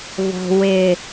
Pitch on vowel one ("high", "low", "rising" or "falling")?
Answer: low